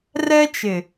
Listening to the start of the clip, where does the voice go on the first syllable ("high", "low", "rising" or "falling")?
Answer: high